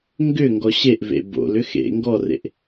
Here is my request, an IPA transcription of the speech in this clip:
ŋ ɡ ʏ ŋ ɡ ɔ ɕ e ʔ v ḛ b o̰ l ʏ x ḛ ŋ ɡ ɔ r ḛ ʔ

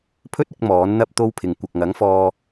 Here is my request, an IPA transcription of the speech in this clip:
pʰ ɵ˥ t̚ ɪ˧ k̚ m ɔː˨˥ n n̪ ɐ˥ p̚ t̪ o˥ w pʰ ɪ˨ ŋ kʷ ɐ˨ k̚ ŋ ɐ˨˥ ŋ f ɔː˧

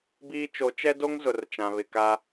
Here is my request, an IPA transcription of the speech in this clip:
b iː˦ t͡ʃ o˨˦ t͡ʃ ɛ˦ d o˦ ŋ z ʊ˨ r t͡ʃ ã˨ β ɪ˨ k a˦

